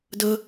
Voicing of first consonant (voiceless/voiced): voiced